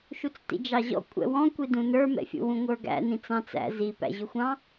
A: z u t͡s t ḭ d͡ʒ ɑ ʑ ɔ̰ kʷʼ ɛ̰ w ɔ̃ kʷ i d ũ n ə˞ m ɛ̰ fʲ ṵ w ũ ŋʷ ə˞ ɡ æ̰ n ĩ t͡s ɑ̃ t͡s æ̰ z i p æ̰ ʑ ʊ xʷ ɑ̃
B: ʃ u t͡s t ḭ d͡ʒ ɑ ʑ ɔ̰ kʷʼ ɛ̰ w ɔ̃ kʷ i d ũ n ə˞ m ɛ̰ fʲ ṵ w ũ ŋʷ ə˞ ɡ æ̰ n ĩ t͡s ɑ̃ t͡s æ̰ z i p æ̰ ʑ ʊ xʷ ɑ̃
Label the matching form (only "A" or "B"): B